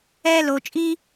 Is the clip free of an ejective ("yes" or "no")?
no